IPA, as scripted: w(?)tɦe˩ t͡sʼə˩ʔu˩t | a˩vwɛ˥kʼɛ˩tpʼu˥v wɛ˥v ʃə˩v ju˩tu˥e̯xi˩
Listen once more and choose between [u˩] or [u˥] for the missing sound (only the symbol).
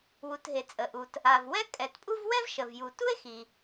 u˩